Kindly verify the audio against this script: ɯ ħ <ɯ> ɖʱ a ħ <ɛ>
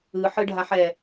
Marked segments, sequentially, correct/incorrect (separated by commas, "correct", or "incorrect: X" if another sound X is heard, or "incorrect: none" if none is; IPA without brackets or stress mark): correct, correct